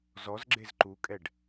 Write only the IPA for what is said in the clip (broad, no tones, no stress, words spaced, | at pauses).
zɔzɡ͡ǁez ǃukʼɛɖ